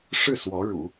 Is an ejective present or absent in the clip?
absent